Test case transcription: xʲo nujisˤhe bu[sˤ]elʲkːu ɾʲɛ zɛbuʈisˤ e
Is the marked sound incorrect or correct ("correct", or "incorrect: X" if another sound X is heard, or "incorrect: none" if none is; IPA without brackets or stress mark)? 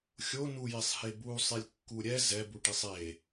correct